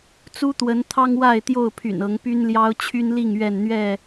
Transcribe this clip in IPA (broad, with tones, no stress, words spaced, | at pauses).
t͡su˦t̪wə˨˦nt̪ʰɑ˦ŋwa˥˨ɪ̯ t̪jo˥˨ʊ̯pʰy̰˨˩nɤ˨˦ŋ py˦nljɑ˦ʊ̯ t͡ɕʰy˦nli˥˨ŋ ɥɛ˥˨nn̪ɥɛ˥˨